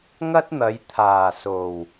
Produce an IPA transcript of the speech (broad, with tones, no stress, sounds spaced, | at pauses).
ŋ ɐ˥ t̚ n̪ ɐ˨˧ j t̪ʰ aː˨˩ s o˨˩ w